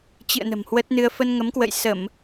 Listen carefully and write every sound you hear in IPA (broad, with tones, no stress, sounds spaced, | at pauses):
t͡ɕ ɨ̰˧˨ ə̯ n ə̤˨˩ m h w ə˦˥ t̚ n ɨ˧ ə̯ f ə˧ n ŋ ə˨˦ m k w ə̰˧˨ j s ə˧˩˨ m